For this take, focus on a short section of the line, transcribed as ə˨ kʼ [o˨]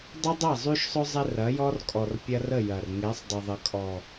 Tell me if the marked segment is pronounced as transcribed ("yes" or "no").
no